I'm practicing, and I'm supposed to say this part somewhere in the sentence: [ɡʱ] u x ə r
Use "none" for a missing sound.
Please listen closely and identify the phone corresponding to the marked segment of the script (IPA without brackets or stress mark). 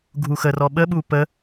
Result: ɡʱ